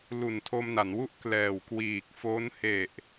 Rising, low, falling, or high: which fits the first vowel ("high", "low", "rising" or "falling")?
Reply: low